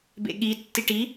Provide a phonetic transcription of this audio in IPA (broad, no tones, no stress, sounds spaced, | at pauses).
b ḛ ɠ i tː i ʈ i